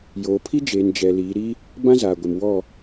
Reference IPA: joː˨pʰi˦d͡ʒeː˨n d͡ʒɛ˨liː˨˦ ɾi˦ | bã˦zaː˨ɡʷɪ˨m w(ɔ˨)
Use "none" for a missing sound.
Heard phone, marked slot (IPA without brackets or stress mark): ɔ˦˨